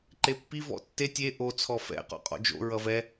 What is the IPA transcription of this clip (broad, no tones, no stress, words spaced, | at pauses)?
ǃepːi vɔ̰tːe tʲe ʔo t͡sʰɔfɛ̰ qɔ̰qʼɔ̰d͡ʒo̰ ɹʌvɛ